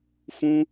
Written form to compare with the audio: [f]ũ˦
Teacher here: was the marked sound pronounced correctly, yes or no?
yes